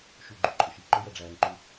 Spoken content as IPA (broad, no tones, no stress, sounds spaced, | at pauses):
ʃ u ɡ͡ǃ u ǃʼ ʊ ʃ i ǃ ʊ j ɜ ɖ͡ʐ æː ŋ ǃ u